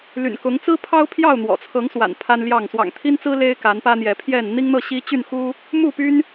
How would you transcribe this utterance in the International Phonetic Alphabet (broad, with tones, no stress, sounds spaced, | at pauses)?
l y̰˨˩ n k ʊ˨˦ ŋ t͡s ɹ̩˦ pʰ ɑ˦ ʊ̯ pʰ j ɑ˥˨ ʊ̯ n̪ w ɔ̰˨˩ t͡sʰ ɤ˨˦ ŋ s w a̰˨˩ n pʰ a˦ n l j ɑ˥˨ ŋ s w ɑ̰˨˩ ŋ t̪ʰ i˦ n t͡s ɹ̩˦ l e˦ ɪ̯ k a˨˦ n p ä˦ n̪ j ɛ˨˦ pʰ j ɛ˥˨ n n̪ i˦ ŋ n̪ ɤ˥˨ ɕ i˦ t͡ɕ y˥˨ n x u˦ | m u˥˨ p y˦ n